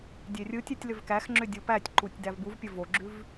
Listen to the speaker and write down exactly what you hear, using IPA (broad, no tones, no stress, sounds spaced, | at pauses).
dʲ e rʲ ɯ tʲ e tʲ l ʏ v k æ x ŋ͡ǁ ʏ dʲ o p æ tʲ ǃ u tʲ d æ v b u v pʲ ə v o ɡ͡ǁ ʉ v